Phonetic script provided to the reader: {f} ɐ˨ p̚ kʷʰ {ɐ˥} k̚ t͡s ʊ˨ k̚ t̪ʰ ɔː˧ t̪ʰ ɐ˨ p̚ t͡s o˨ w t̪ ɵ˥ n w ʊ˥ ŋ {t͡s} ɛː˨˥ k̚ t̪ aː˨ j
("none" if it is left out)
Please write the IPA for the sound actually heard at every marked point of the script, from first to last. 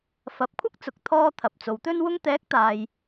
f, ɐ˥, t̪

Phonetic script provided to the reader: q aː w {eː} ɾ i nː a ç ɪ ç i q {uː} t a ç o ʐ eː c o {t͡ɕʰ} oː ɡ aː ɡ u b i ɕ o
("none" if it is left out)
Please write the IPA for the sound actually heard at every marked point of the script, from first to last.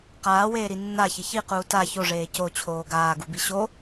eː, uː, t͡ɕʰ

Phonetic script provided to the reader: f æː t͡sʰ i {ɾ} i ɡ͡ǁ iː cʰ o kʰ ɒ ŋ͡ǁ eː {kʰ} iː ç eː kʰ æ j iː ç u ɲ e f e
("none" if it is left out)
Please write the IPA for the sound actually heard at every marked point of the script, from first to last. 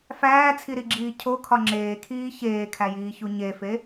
ɾ, kʰ

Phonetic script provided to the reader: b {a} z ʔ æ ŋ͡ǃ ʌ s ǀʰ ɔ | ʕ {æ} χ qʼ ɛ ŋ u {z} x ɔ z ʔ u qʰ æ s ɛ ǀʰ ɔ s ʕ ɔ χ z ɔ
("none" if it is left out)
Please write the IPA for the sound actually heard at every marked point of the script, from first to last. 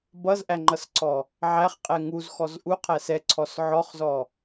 ʌ, æ, z

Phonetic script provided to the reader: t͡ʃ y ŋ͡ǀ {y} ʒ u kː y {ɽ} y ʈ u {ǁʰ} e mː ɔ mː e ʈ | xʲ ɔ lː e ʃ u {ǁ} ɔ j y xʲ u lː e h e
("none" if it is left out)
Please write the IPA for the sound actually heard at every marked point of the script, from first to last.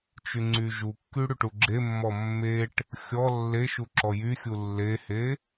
y, ɽ, ɡ͡ǁ, ǁ

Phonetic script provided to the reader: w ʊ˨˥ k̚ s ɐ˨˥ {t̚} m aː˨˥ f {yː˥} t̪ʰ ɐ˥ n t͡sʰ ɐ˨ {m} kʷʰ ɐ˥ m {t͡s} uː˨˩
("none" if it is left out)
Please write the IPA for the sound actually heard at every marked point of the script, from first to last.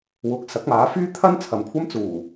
k̚, yː˥, m, t͡s

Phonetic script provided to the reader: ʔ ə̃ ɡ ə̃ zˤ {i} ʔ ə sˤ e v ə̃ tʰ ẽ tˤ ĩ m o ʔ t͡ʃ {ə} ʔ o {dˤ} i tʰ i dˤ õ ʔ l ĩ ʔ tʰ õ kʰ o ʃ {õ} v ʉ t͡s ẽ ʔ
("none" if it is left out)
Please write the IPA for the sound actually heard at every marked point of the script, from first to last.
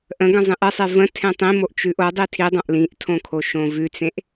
ĩ, ʉ, dˤ, õ

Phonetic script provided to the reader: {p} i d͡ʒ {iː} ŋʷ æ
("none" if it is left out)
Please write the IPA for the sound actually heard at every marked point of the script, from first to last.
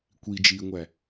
kʷ, iː

